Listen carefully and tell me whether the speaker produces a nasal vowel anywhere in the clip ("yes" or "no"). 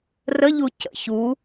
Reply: no